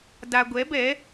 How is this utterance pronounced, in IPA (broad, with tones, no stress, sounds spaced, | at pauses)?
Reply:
d a˨ ɡʷ ɛ˨˦ b ɛ˨˦